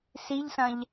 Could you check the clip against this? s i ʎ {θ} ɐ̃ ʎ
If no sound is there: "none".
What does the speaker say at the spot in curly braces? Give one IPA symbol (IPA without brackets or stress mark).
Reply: s